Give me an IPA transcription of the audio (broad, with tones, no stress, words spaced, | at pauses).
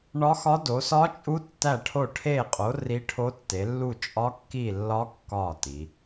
ɳɒ˦˥xɒ˦˥do˨˦ sɒ˦˥t͡ʃʼu˦˥tːæ˦˨ʈʰo˦˨ ʈʰe˦˨qʼo˨˦ ri˦˥ʈʰo˦˥tːe˨˦ lːu˦˨t͡ʃʼɒ˦˥kːi˦˨lːɒ˦˥ kːɒ˦˨ ti˨˦